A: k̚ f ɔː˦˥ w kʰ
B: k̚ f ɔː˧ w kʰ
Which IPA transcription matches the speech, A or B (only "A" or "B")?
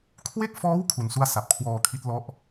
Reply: A